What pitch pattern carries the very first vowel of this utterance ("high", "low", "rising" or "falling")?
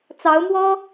rising